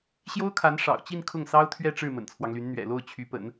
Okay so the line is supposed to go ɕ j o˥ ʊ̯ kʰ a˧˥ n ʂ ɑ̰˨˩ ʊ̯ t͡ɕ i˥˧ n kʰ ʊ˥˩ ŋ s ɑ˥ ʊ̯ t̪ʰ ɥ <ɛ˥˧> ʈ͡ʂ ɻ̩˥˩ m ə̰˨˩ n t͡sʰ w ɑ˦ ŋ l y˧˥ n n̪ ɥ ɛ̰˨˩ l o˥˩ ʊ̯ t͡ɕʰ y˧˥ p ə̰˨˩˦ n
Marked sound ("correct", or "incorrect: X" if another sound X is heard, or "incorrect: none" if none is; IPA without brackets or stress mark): correct